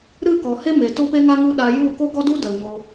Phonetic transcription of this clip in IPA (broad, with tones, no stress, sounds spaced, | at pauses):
ɾ ɨ˦˨ k ɔ˨ h e˦ m e˨ t o˦ p e˦ ŋ a˦ ŋ u˦ ɗ a˧ j u˦˨ k o˦ ɡ ɔ˦ d u˦ d ə˨ l ɲ o˧